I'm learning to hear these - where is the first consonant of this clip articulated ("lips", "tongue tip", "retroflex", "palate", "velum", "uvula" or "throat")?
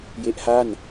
palate